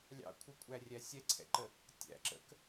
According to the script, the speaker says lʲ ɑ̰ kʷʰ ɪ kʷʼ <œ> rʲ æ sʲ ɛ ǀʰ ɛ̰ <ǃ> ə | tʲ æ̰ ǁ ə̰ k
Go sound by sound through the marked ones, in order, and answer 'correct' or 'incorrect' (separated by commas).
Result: incorrect, correct